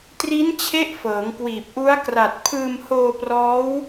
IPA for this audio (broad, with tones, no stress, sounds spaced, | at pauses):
t r i˦˥ n t͡ɕʰ e˦˥ ʔ f ɤː˩˦ ŋ k w iː˨˩ p̚ ʔ u˦˥ a̯ k r a˨˩ t̚ pʰ ɯː˧ m h oː˧ p r ɔː˦˥ w